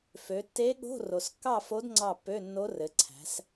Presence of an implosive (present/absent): present